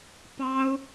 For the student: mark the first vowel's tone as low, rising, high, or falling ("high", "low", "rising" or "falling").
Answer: high